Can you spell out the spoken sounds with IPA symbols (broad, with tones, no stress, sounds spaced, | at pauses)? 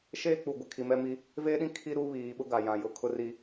ʃ eː˦ k͡p u˨ ɡʷ ɪ˨ kʰ i˨ m ɛ˦ m i˦ | v eː˦ ɗ ĩ˦ kʰ i˦ ɾ u˦ β iː˨ ɓ ʊ˦ ɡ a˨ j ã˨ j ʊ˦˨ kʰ ʊ˦ r i˦